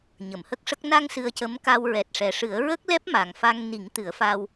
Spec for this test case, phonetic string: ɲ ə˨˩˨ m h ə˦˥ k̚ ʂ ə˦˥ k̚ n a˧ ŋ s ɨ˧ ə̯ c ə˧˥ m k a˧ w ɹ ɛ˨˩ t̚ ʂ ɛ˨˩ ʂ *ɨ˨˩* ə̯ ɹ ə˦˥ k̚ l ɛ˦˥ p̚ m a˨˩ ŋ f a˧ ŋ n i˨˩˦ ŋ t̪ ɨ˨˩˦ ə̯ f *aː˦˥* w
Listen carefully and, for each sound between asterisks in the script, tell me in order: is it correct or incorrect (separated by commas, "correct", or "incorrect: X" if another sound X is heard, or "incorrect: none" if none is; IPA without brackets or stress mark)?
incorrect: ɨ˨˩˦, incorrect: aː˧